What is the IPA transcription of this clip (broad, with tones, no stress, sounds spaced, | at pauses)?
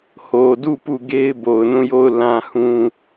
h o˨ d u˦˨ p u˦˨ ɡ e˦ ɪ̯ b o˨ ʊ̯ n ũ˦˨ j o˦˨ ʊ̯ l ã˦ h ũ˦